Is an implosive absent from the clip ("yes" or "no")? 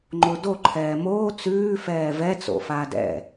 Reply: yes